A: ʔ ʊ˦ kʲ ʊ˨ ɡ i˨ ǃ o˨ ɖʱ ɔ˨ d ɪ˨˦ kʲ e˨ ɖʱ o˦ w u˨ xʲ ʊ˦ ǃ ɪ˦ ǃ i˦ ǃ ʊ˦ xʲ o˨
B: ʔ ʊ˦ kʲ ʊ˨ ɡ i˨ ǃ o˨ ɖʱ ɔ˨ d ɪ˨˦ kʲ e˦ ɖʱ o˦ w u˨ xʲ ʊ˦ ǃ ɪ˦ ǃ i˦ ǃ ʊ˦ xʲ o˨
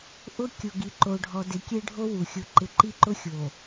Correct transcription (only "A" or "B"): B